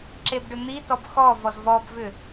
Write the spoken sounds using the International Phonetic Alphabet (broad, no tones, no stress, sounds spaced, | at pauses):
ǁ e b ɖ ʏ n̪ i t ɔ b x ɔ v ɔ z v ɔ b v ʏ